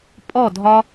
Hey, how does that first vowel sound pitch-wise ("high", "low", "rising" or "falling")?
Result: falling